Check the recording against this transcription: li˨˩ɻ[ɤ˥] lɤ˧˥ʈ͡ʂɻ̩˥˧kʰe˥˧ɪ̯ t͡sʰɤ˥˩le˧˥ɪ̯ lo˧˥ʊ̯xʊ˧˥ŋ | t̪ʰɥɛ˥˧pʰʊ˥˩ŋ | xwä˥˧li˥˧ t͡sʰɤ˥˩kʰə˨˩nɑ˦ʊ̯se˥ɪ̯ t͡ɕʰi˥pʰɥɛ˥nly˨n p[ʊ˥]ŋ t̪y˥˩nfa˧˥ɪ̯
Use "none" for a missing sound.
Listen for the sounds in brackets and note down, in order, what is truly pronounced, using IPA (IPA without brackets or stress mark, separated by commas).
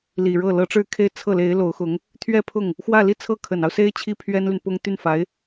ɤ˥˩, ʊ˥